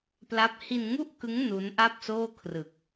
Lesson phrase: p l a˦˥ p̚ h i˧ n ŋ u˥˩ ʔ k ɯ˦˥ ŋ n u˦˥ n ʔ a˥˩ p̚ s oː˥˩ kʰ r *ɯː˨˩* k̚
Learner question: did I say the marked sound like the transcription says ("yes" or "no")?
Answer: no